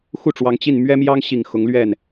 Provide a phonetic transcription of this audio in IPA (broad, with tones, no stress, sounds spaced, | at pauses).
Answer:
x u˥˩ ʈ͡ʂ w ɑ˧˥ ŋ t͡ɕ i˥˩ n m ɥ ɛ˥ m j ɑ˥ ŋ ɕ i˨˩ ŋ x ʊ˧˥ ŋ l ɥ ɛ˥˩ n